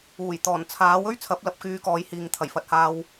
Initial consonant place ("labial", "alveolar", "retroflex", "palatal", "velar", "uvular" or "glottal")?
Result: palatal